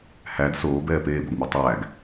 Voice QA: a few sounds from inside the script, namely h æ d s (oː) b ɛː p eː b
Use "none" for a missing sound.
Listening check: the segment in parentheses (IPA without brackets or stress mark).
oː